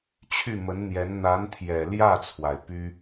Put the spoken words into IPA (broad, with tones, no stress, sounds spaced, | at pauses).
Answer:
t͡ɕʰ y˥˩ m ə˧˥ n n̪ j ɛ˧˥ n n̪ a˧˥ n t̪ʰ j ɛ˨˩ l j ä˥˩ t͡sʰ w a˩ ɪ̯ p y˥